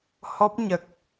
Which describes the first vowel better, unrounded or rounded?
rounded